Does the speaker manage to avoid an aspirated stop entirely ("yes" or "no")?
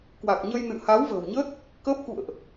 yes